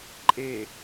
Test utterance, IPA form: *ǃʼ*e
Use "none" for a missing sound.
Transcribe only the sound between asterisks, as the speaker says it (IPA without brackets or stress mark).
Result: ǃʼ